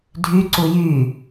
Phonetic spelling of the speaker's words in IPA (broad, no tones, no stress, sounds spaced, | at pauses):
dʱ y ǀ u j y